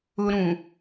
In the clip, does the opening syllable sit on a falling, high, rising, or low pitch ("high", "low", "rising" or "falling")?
high